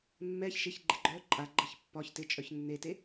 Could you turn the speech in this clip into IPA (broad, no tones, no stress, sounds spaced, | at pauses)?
mː ɛ ç ʃ ɪ ç ɡ͡ǃ ɪ ɡ͡ǃ œ ǃʼ a ɡ͡ǃ ə ç pː ɒ ç t ɪ t͡ʃʼ œ ç nː e t e